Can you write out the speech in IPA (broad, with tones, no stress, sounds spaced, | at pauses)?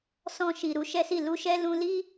s ɔ̃˧ ʃ i˨ ɾ u˨˦ ʃ ɛ˦ s i˦˨ l u˧ ʃ ɛ˦ l ũ˧ l i˦